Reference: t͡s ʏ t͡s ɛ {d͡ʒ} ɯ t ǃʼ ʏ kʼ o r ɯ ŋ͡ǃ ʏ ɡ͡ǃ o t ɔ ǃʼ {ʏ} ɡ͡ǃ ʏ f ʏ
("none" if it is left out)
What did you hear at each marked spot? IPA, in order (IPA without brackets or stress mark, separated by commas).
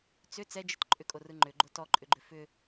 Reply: d͡ʒ, ʏ